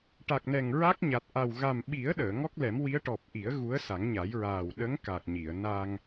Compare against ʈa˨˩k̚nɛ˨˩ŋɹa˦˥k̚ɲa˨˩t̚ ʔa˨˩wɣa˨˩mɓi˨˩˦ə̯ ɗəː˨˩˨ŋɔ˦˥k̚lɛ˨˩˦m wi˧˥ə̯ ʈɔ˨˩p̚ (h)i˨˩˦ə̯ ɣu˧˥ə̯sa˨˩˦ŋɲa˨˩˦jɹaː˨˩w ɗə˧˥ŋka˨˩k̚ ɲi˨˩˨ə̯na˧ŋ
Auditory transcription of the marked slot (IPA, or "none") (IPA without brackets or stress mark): ʔ